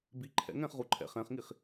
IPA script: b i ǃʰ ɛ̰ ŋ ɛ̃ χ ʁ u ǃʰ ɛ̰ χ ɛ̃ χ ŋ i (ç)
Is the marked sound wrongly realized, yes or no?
yes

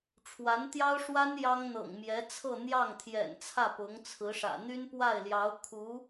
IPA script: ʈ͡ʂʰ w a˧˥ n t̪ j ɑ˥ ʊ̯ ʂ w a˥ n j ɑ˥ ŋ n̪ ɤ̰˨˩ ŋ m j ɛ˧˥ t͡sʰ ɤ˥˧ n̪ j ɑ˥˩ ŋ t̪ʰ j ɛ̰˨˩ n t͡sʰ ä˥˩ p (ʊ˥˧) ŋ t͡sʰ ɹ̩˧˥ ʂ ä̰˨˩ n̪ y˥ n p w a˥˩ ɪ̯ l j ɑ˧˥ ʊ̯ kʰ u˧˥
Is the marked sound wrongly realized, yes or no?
yes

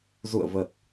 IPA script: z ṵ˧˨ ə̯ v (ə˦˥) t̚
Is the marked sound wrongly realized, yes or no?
yes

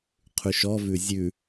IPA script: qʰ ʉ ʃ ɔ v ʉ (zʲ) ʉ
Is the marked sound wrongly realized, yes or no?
no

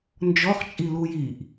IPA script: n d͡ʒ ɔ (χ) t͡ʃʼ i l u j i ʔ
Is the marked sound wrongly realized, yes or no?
no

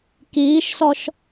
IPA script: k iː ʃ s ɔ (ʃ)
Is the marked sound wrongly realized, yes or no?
no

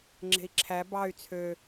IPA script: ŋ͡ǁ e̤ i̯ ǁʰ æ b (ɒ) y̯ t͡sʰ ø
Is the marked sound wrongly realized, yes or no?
yes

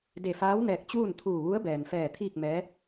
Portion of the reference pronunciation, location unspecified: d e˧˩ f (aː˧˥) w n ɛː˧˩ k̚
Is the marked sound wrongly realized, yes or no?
no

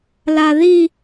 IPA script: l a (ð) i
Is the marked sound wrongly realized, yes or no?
no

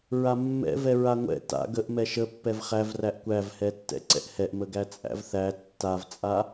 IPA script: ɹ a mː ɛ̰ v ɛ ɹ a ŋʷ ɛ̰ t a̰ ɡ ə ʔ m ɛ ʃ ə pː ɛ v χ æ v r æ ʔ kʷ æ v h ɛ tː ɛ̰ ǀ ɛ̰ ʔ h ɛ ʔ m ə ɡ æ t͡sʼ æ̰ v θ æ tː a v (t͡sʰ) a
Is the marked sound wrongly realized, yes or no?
yes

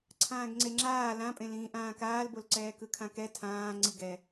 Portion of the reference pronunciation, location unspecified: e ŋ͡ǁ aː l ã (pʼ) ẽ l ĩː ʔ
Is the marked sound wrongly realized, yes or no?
no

